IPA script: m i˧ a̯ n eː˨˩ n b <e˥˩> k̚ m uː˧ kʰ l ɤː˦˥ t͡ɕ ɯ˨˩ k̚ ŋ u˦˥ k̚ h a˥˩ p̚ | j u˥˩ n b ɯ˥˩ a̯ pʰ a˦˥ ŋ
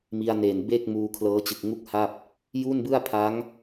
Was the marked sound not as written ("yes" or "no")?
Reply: no